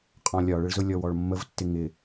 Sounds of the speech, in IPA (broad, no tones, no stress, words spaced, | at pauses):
qʼɔ̃lʲɒɭɪɭzʊ lʲɔwɔɭmːəvtːɪ ŋɪ